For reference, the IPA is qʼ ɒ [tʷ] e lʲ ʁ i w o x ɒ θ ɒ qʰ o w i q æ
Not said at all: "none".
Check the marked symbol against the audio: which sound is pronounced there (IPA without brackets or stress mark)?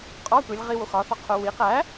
tʷ